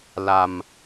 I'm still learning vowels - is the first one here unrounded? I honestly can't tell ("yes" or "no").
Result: yes